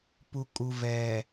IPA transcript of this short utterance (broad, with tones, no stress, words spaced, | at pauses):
pu˨ kʼu˨vɛ˨